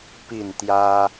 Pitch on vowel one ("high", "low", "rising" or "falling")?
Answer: falling